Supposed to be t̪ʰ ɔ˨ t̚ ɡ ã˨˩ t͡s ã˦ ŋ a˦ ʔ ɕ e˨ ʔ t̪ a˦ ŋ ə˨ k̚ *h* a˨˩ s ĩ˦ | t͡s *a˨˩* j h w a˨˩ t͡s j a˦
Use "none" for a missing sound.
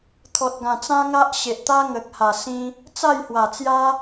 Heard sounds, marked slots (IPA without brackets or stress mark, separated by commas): h, a˥˧